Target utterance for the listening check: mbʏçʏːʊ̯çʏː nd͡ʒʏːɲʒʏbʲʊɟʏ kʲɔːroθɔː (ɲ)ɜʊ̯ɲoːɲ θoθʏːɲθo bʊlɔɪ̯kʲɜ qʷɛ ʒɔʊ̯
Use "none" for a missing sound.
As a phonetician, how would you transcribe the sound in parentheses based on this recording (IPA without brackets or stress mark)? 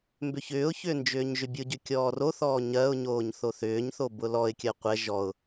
ɲ